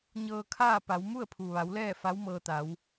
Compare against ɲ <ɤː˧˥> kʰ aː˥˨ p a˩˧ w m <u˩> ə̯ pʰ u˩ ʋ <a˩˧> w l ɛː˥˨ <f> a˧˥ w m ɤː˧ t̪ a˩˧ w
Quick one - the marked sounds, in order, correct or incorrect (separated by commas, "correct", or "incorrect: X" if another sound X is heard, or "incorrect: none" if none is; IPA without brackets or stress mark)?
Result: incorrect: ɤː˧, incorrect: u˥˨, correct, correct